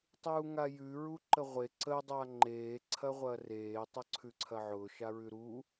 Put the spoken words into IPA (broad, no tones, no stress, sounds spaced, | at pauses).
tˤ uː ŋ a j ʉ ɹ u ǃ ə ʁʷ e ǀ ə dˤ a ŋ͡ǃ eː ǀʰ ɐ ʁʷ ɐ r eː tˤ ʊ ǀʰ ʉ ǀʰ ɐ ʕ ʊː ʃ a ɹ ʉ ɾ u